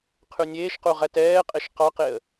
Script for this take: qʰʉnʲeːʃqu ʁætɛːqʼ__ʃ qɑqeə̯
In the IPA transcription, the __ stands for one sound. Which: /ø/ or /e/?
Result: e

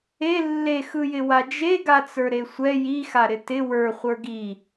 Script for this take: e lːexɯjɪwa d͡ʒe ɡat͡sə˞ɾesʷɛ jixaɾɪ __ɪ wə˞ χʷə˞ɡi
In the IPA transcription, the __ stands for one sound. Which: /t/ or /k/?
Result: t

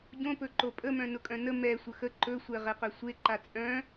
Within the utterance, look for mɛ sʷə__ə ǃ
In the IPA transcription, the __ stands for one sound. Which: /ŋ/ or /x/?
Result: x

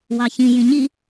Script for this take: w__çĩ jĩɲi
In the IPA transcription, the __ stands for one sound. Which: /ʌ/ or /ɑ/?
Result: ɑ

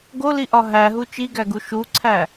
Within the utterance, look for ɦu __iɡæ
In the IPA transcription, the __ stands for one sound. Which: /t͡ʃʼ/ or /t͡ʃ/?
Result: t͡ʃ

